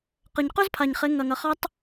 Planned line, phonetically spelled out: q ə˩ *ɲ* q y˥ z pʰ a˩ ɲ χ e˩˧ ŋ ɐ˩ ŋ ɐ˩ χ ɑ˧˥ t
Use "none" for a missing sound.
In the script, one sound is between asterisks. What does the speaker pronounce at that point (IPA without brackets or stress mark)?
ɲ